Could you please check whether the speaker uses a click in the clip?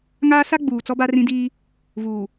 no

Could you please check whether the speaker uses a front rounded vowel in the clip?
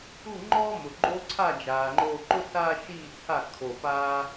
no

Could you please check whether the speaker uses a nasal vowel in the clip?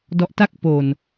no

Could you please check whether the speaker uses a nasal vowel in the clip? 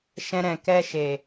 yes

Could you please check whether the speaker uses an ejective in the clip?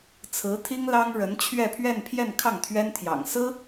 no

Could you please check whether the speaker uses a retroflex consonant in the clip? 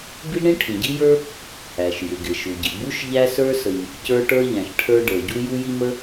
yes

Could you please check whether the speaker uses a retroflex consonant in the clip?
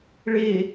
yes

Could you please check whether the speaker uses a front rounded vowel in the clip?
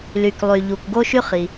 yes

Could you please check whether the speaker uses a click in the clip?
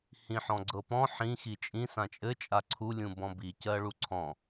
yes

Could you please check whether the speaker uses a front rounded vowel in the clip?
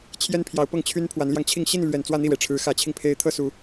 yes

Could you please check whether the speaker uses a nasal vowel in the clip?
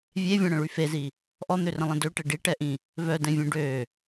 yes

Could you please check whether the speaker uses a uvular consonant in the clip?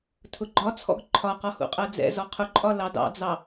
yes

